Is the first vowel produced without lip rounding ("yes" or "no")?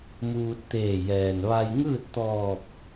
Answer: no